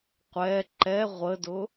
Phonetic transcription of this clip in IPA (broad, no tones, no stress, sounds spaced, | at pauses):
qʷ ɛ ǃ ɛ ʁʷ ə d ʊ